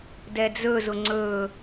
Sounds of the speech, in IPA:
d ɛ d͡z ɵ z ʊ ŋ͡ǀ ɵː

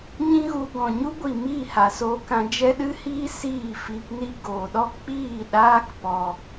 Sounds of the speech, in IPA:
ɲ ĩ˦ ɣ u˧ ɡ ɔ̃˨ ɲ u˦ ɡʷ i˨ m iː˦˨ h a˨ s oː˧ k ã˧ d͡ʒ ɛ˦ ɗ ɨ˦ h iː˦ s iː˦˨ f i˧ p n i˦ ɡ oː˨ ɗ ɔ˦ k͡p iː˦˨ ɗ aː˦ k p ɔ˧

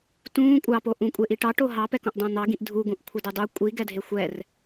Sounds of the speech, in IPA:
t ũː kʷʼ ɑ p o ʔ ũ kʷʼ e ʔ i ʈ ɑ ʈ o ɦ ɑ p ɛ k õ ʔ dˤ õ n̪ ɑ ɡ ĩ ʔ dʱ u ɡ ũ ʔ kʷʰ ɛ d e dˤ u kʷʼ i ɡ ɛ dʱ e xʷ ɛ r

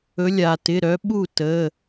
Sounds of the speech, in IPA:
ɵ˨˦ lʲ a˩ t ɪ˩˧˩ ɾ œ˨˦ ɓ u˥˩ t ə˩˧˩

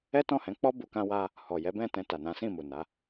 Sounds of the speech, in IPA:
ɛ˦ t ɔ̃˦˨ h ɛ̃˨˦ k͡p ɔ˦ b u˧ k ã˦ w a˦ | h ɔ˨ j ɛ˨˦ b ɛ̃˦˨ t ɛ̃˧ t a˨ n ã˨˦ s ĩ˦˨ m u˨ n a˨˦

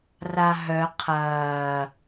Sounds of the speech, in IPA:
r a ɦ œ qʰ ɐː

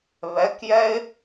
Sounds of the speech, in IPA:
β ɛ k j ɛ ɪ̯

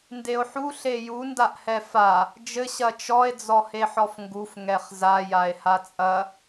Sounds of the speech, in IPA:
n d e o̯ ħ u ɬ e j u n d a ʔ h ɛ f a | d͡ʒ ɘ ɕ ɐ t͡ʃ ɔ e̯ d͡z ɔ h e ħ ɔ f ŋ ɡ u f ŋ ɛ χ z a j a e̯ h a t͡sʼ ɐ

